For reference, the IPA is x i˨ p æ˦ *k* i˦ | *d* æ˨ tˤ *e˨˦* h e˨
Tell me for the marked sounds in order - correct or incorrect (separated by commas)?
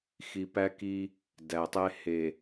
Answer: correct, correct, incorrect